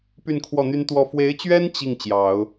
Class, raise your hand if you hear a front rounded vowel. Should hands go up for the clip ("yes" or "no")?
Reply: yes